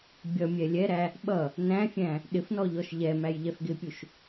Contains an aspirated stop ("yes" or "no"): no